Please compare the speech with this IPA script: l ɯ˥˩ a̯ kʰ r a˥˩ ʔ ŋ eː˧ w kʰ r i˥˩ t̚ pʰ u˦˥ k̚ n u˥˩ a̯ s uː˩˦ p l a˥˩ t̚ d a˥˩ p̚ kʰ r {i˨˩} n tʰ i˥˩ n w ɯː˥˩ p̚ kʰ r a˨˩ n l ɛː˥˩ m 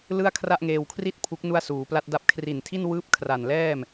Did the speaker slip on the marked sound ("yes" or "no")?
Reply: no